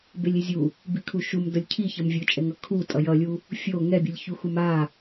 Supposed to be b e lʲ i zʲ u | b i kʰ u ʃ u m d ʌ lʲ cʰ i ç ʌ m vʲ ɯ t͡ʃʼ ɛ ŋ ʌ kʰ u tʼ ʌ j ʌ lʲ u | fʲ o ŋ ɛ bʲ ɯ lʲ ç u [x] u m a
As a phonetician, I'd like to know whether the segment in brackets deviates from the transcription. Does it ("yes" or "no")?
no